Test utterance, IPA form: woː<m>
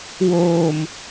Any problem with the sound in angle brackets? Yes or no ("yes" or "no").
no